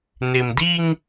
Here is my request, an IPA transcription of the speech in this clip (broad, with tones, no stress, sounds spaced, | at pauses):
n ɪ˨ m d i˦ ŋ